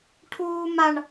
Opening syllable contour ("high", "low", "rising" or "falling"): high